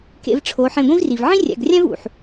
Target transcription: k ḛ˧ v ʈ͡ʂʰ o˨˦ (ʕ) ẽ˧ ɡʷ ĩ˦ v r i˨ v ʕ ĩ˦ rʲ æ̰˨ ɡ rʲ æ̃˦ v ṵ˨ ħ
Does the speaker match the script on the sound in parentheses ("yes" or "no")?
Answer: no